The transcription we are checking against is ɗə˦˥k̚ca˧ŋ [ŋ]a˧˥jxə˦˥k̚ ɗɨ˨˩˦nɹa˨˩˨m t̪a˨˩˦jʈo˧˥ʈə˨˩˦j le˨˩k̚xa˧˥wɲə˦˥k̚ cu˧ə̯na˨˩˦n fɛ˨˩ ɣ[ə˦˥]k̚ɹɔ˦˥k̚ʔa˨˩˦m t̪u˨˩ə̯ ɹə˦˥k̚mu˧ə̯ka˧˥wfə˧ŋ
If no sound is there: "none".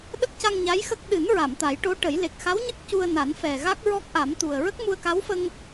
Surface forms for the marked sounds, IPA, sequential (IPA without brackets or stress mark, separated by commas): ɲ, a˦˥